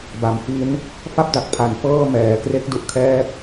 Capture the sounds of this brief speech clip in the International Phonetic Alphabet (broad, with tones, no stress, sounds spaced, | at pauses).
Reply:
b a˨˩ m f i˦˥ n | f a˦˥ p̚ d a˨˩ k̚ pʰ a˨˩ n f ɤː˥˩ m ɛː˩˦ k r e˥˩ k̚ d u˦˥ ʔ kʰ ɛː˥˩ k̚